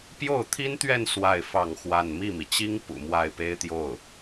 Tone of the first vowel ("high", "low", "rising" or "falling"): falling